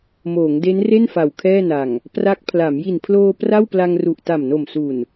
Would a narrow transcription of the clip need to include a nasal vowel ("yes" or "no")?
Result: no